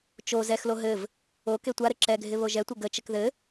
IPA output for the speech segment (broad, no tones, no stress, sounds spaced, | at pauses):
t͡ʃ o z ɛ x l o ɦ ɘ v | o k e tʷ a ɾ ɘ ǁ ɛ ɡʱ ɪ β o ʒ ɛ tʷ ɘ ɡ ə t͡ʃ ɘ k ð ɘ